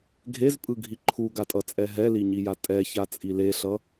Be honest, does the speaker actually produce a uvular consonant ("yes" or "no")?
no